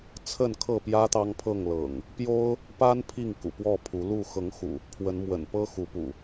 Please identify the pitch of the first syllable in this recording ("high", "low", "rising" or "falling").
falling